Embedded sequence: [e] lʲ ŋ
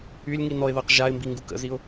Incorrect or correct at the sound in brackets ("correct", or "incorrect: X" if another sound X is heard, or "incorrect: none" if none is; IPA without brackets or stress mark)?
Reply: incorrect: y